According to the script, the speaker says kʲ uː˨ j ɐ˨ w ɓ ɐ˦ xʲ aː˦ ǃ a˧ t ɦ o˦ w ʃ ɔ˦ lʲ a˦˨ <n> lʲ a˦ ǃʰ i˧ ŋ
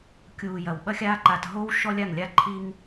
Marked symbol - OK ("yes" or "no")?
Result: no